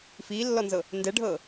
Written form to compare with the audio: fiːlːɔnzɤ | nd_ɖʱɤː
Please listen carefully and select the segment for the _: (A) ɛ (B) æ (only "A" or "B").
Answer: A